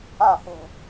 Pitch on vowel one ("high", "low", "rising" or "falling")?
falling